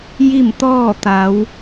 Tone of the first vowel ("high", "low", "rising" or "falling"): falling